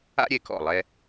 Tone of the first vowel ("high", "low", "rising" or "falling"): high